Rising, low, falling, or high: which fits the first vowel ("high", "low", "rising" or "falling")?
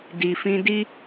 low